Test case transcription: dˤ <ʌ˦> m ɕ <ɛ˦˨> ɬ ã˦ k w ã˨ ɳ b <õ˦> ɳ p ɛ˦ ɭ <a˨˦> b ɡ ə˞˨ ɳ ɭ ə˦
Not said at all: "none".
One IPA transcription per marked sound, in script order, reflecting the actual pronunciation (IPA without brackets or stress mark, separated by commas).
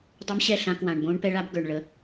ə˦, ɛ˦˨, õ˦, a˦